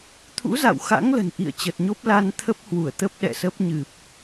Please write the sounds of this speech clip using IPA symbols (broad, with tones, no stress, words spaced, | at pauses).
t̪ʰṵ˧˥za̰˧˨wxa̰˧˥ŋ lə̤˨˩nʔḭ˧˨ə̯t͡ɕə˨˩t̚ɲo˦˥p̚ la˧nt̪ʰə˦˥p̚ hwu˧˩ə̯t̪ə˦˥p̚ɗɛ̰˧˨sə˦˥p̚ ɲɨ˨˩p̚